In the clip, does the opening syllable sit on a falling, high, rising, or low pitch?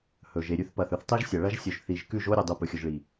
low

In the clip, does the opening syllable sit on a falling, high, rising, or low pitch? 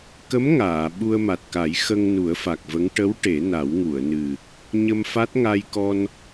rising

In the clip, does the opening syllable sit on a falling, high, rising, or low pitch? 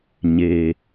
low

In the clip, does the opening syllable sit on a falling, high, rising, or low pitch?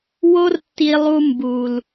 high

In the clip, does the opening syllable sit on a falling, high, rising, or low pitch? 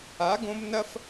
rising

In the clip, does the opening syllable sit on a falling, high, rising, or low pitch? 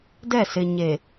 falling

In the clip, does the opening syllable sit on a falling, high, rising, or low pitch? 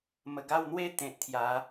low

